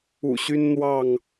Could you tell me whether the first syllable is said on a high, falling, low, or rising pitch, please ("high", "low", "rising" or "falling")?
low